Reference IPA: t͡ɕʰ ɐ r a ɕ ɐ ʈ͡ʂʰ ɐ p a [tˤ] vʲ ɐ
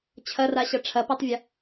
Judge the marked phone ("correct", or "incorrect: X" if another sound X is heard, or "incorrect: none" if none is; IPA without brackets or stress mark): correct